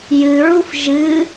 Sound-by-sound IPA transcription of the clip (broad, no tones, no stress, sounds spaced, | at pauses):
j ɨ ɹ u f ʒ ɨ